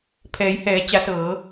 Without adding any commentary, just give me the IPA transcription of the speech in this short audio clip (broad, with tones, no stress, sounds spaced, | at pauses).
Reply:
pʰ ɛː˩˧ j h ɛː˩˧ t͡ɕ a˩˧ s ɤː˩˧